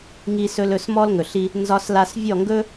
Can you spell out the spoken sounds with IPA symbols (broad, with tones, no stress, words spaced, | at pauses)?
ŋi˧sɵ˧l ɵ˥˩smɔ˥lŋɵ˩ɬi˧ | nzɒ˧sla˧s vʲɔ˥˩ŋɡɵ˥